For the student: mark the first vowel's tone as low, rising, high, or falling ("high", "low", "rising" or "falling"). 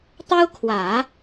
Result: high